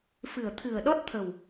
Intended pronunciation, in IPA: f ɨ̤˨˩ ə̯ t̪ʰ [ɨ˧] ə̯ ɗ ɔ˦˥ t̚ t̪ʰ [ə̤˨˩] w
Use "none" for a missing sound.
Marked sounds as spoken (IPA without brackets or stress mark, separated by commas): ɨ̤˨˩, ə̤˨˩